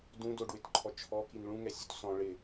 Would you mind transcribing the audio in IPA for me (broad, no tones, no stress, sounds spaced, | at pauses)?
d ũ d o ɖ w ɪ t ǃʰ ɔ t͡ʃʰ ɔ k i n ɭ ũ ŋ ɛ sʲ u t s ɔ̃ ɭ ɪ